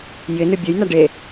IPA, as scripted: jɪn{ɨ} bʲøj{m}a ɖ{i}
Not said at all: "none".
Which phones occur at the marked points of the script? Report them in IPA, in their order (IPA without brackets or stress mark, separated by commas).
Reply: ɨ, n, e